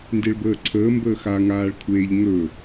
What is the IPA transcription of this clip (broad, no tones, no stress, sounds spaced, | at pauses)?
n d e ɭ b əː ǀʰ əː m b əː x a ŋ aː ɭ kʷʰ eː ʎ ŋ ɵ